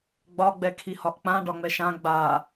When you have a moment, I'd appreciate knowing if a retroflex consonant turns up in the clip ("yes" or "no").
yes